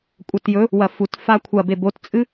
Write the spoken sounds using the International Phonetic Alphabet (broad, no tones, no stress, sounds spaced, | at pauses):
kʷʼ ɐ t j ɵ | w ɐ f u t f a kʷʰ ɐ b e b o t t͡sʼ ɨ